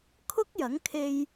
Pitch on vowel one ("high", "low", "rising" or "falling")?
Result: high